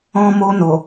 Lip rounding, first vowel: rounded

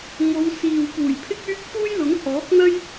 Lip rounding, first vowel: rounded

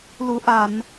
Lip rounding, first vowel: rounded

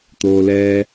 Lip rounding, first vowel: rounded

